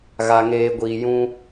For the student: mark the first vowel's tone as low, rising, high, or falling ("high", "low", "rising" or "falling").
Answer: low